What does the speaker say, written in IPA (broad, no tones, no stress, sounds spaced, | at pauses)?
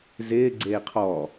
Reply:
z ɪː ɡ͡ǀ eː qʰ ɔ